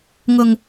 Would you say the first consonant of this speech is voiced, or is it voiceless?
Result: voiced